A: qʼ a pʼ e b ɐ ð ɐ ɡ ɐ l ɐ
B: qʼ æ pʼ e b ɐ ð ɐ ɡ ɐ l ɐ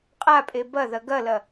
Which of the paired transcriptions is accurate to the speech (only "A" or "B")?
A